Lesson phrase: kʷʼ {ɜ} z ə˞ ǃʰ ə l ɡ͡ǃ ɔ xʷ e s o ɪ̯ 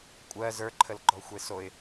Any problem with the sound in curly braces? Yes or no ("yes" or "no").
no